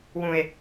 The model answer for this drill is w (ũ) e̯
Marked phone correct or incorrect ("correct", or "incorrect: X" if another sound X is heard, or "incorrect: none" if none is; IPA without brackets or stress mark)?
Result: correct